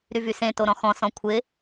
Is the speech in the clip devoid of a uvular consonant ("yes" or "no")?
yes